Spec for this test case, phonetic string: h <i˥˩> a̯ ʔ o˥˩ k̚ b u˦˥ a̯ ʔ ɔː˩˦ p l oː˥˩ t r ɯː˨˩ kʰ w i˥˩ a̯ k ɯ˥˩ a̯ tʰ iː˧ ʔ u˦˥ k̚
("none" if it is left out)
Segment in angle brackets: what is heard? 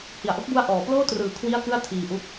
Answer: i˨˩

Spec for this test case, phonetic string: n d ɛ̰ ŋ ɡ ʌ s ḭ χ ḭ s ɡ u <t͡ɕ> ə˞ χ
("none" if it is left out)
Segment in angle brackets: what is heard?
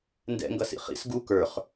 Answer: k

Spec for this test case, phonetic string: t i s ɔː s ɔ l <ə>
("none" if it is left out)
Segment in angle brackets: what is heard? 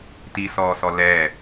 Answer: ɛ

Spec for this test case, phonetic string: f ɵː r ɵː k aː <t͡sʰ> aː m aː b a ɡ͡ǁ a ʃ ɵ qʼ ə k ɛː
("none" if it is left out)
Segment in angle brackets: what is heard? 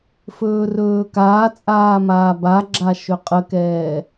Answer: t͡sʼ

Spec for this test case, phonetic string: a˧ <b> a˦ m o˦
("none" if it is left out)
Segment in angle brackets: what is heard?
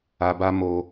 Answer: b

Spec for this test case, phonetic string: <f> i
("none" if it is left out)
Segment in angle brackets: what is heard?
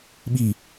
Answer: ɓ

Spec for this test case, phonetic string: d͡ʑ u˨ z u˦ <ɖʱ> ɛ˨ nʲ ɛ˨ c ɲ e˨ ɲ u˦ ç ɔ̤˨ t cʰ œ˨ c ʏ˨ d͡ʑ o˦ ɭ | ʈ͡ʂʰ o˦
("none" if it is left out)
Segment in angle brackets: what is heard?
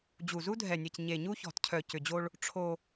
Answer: dʱ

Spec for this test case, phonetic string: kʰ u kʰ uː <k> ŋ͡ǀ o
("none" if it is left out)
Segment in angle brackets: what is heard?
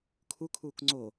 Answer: k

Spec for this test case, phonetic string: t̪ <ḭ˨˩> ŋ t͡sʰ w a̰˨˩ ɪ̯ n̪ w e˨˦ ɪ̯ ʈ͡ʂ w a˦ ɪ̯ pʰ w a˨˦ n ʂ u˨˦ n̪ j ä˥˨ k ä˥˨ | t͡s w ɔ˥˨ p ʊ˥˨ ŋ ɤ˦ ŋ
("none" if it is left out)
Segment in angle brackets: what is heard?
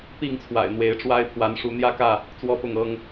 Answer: i˥˨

